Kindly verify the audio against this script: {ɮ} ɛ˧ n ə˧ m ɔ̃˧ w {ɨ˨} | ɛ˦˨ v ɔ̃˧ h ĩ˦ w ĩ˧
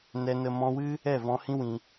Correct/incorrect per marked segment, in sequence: incorrect, incorrect

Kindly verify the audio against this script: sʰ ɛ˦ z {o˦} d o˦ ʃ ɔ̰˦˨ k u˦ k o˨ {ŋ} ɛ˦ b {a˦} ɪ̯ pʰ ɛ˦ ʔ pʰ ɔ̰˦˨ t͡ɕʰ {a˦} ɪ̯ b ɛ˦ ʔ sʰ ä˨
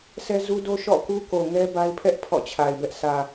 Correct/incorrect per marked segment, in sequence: incorrect, correct, correct, incorrect

